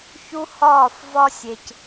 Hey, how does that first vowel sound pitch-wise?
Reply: high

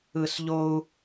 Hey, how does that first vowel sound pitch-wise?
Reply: high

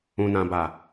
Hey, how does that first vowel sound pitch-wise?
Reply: low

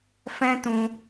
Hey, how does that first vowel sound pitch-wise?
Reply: high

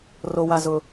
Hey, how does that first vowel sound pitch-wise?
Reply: low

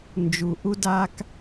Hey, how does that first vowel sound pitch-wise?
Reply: low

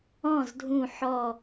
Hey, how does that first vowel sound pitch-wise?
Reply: falling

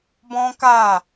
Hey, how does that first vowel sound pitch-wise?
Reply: high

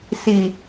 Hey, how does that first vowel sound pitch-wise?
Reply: low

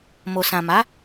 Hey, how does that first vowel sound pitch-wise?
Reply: low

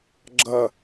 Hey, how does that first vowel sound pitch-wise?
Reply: low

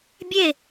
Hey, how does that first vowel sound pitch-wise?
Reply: falling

